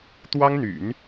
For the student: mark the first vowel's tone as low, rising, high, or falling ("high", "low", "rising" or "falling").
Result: high